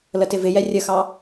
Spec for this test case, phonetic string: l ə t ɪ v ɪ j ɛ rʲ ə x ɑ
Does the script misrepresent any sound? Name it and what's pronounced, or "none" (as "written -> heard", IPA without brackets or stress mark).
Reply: none